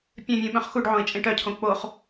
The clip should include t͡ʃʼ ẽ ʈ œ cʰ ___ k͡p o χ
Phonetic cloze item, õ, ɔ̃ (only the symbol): õ